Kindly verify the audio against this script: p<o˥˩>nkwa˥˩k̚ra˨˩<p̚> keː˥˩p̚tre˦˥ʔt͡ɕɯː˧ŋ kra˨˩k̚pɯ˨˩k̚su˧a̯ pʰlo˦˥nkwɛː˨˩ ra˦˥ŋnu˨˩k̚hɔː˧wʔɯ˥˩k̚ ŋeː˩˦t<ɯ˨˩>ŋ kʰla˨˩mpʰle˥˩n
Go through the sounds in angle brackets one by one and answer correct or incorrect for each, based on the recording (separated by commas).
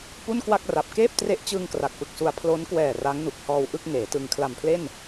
incorrect, correct, incorrect